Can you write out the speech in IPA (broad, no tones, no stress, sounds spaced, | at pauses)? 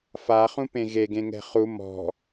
f a χ ũ p ẽ ɣ e ɡ ẽ ŋ ɛ̤ χ u m ɔ̤